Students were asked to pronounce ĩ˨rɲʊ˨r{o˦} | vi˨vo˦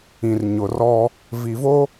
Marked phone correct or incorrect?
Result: incorrect: ɔ˦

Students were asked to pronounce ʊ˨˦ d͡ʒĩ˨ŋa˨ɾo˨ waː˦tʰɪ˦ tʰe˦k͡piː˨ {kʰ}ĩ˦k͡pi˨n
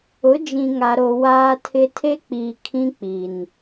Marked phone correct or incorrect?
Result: correct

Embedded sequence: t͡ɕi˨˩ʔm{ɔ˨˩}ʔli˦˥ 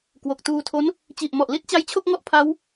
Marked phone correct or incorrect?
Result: correct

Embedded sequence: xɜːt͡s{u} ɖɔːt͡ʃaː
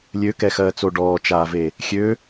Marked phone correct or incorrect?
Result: incorrect: o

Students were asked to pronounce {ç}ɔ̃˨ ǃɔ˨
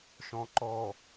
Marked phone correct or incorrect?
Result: incorrect: ʃ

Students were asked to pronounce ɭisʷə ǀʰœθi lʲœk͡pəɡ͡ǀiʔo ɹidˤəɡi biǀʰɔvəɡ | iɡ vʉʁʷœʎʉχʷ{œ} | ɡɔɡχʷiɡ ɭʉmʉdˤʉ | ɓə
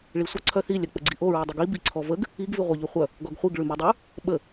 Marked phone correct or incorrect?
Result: correct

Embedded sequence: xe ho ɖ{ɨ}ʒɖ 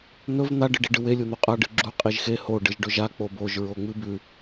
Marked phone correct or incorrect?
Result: correct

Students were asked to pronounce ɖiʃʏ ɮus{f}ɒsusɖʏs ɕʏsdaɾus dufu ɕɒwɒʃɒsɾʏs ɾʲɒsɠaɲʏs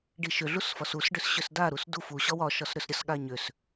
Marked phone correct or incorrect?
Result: correct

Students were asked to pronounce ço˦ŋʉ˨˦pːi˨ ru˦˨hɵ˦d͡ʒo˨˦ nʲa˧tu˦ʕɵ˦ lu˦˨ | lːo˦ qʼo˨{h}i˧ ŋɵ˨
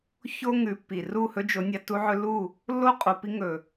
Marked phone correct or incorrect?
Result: incorrect: p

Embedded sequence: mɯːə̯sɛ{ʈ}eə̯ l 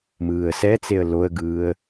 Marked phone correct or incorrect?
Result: incorrect: t͡s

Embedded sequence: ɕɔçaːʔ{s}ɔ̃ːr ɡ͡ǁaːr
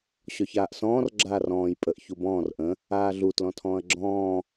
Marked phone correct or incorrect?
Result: correct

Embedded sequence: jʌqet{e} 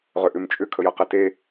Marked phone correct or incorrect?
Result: correct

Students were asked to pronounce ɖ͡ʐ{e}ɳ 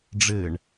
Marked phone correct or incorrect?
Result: incorrect: ɘ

